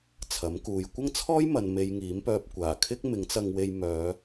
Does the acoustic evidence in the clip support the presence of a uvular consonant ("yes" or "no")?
no